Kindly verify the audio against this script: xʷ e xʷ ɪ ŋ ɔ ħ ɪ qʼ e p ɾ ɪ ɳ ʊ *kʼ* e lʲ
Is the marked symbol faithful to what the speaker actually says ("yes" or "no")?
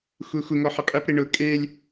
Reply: yes